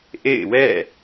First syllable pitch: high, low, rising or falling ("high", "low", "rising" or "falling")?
falling